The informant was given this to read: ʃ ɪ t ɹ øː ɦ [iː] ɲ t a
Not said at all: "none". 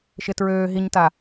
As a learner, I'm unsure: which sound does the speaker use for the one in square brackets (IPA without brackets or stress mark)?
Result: i